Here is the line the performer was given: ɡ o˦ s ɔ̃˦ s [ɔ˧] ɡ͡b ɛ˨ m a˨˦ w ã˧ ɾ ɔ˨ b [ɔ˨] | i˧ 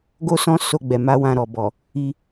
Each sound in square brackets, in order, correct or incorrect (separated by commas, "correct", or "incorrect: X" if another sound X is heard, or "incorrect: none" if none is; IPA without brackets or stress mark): incorrect: o˧, correct